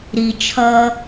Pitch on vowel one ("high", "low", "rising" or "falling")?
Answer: low